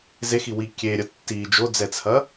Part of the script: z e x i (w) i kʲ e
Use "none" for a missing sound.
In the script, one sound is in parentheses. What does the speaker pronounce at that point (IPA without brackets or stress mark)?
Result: w